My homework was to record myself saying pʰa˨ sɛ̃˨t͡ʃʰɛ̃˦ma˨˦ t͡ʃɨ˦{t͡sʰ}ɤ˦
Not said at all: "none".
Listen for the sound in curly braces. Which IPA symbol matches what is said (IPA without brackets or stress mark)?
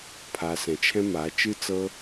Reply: t͡s